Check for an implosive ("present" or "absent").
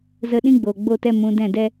present